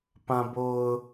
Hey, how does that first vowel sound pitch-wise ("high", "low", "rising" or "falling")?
low